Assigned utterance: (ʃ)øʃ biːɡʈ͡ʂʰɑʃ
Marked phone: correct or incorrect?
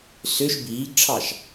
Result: incorrect